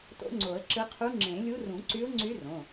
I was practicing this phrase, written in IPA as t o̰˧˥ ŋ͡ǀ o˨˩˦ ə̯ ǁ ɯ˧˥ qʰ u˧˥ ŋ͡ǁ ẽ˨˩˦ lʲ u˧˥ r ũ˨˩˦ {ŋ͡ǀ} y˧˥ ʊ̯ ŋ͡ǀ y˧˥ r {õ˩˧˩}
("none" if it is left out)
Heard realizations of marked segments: ǀ, õ˩˧˩

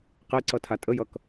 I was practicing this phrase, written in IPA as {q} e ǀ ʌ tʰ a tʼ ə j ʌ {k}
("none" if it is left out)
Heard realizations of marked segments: q, k

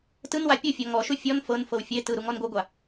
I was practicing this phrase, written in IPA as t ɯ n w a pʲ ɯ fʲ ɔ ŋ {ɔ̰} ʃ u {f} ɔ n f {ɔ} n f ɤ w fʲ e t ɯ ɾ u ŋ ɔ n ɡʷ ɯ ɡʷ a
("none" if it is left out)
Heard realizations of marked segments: ɔ, fʲ, ɤ

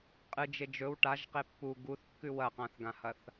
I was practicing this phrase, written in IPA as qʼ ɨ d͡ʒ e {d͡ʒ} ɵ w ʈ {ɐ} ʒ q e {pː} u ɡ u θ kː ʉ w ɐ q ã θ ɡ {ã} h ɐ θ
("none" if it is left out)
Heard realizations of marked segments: d͡ʒ, a, pː, ã

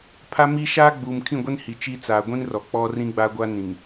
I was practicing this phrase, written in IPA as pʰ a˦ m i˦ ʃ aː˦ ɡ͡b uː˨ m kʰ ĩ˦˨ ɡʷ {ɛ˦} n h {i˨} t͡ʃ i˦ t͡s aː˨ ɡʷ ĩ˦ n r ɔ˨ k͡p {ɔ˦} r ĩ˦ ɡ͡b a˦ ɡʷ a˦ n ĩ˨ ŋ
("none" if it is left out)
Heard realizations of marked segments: ɛ˦, i˨, ɔ˦

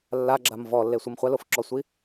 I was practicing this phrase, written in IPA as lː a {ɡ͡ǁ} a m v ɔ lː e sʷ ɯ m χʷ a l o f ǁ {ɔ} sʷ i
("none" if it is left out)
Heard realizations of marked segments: ɡ͡ǁ, ɔ

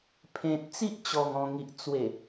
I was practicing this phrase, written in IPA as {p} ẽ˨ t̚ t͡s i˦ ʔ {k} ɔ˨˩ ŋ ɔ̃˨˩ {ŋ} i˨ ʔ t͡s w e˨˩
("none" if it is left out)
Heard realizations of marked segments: pʰ, t͡ɕ, ŋ

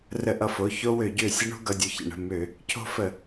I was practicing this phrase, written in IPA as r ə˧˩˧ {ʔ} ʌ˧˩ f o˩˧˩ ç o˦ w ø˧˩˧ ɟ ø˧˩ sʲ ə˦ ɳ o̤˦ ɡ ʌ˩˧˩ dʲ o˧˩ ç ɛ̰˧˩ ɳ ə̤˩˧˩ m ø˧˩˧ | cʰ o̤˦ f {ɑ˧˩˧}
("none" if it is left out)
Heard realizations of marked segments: ʔ, ə˧˩˧

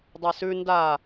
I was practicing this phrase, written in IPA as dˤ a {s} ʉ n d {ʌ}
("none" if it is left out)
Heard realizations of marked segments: s, a

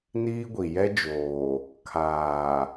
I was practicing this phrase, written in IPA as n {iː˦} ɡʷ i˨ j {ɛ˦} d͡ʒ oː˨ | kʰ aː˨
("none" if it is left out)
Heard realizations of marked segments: iː˦, ɛ˦

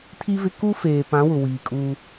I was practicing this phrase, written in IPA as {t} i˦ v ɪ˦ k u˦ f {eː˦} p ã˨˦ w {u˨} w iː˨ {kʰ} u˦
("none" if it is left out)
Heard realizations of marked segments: tʰ, eː˨, ʊ˨, kʼ

